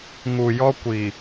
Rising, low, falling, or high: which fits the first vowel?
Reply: low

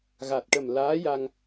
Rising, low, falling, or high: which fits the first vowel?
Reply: low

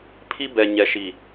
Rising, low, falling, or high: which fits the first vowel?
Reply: high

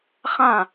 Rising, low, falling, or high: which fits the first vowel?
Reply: falling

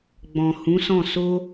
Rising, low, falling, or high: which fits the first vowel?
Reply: low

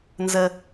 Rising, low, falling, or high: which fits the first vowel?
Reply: high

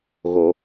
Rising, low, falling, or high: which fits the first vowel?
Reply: low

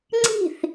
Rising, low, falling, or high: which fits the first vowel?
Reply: falling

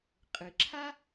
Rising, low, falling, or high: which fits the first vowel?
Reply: low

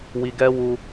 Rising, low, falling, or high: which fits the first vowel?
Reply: low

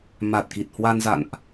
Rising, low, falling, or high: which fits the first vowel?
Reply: low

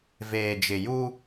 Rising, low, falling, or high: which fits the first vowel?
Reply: low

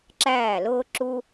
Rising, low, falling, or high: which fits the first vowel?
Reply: falling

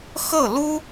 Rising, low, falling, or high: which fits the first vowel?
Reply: falling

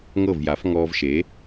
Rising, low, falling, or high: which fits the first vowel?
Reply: falling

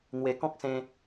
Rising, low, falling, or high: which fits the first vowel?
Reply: low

